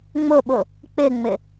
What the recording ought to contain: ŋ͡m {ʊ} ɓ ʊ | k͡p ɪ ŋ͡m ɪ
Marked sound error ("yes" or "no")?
no